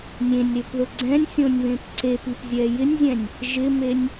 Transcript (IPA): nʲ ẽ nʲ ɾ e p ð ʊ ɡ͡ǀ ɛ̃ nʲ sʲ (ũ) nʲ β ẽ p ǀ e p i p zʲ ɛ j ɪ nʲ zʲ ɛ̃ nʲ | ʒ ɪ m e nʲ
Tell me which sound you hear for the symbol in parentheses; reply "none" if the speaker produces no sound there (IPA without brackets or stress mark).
õ